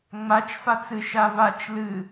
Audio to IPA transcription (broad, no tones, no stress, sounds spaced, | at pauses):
ŋ͡m a t͡ʃ f a t͡s ɨ ʃ a v a t͡ʃ l ɨ